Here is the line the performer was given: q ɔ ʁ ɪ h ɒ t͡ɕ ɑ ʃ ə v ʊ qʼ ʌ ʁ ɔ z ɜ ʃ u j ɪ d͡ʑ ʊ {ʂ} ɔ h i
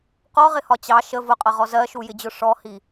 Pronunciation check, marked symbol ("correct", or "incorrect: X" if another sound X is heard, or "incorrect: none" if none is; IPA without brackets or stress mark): correct